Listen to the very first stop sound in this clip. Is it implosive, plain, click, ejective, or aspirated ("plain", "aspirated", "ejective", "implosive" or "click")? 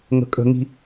ejective